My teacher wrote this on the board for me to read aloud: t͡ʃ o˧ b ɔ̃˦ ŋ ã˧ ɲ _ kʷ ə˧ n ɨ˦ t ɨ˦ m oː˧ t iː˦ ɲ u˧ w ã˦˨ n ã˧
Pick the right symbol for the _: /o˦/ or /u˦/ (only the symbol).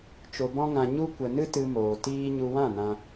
u˦